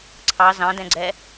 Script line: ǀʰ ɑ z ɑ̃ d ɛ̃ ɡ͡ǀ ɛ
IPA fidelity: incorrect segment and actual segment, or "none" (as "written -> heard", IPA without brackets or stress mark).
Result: none